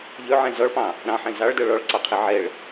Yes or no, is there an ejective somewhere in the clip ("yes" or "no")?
no